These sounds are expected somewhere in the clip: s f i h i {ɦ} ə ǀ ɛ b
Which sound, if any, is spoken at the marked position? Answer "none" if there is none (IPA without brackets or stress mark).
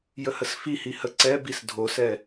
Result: h